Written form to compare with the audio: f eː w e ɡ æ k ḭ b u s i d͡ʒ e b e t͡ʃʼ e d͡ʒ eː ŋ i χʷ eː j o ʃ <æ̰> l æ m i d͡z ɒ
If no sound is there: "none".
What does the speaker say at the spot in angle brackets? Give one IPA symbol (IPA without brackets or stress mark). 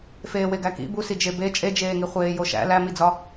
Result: æ̰